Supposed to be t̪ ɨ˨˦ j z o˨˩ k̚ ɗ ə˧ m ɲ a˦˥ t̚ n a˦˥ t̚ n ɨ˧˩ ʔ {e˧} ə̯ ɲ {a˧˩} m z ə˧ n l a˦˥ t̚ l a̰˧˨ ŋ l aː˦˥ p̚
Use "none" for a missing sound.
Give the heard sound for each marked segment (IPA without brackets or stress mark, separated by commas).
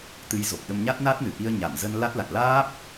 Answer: i˧, a˧˩